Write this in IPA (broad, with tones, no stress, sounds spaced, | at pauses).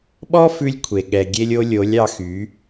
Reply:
ɓ ɔ˦ f ʉ˧ lʲ kʷʰ e˨ ɠ ɛ˨ ɡʲ e˧ lʲ o˧ lʲ o˨˦ lʲ ɑ˧ x y˨˦